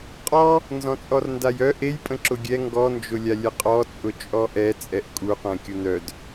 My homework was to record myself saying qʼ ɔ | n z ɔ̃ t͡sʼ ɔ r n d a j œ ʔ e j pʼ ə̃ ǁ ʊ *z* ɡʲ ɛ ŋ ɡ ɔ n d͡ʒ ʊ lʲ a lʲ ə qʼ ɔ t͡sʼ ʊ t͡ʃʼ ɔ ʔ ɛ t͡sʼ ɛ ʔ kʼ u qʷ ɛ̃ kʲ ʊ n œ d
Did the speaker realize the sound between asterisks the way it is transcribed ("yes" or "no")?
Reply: no